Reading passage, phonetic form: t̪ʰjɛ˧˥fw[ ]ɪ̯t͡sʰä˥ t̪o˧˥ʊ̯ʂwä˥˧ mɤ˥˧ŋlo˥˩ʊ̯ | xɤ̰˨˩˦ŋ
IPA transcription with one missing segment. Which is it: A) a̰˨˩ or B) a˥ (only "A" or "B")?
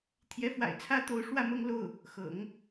A